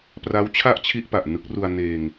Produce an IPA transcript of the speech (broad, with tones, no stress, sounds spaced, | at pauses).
p r a˦˥ w t͡ɕʰ a˥˩ ʔ t͡ɕʰ i˥˩ ʔ p a˨˩ ʔ n ɯ˦˥ k̚ r u˧ a̯ n eː˧ ŋ